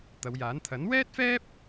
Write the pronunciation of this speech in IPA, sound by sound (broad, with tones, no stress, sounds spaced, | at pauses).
t̪ ɐ˨˧ w j aː˨˥ n t̪ʰ ɐ˨˥ n w ɛː˥ t̚ f ɛː˥ p̚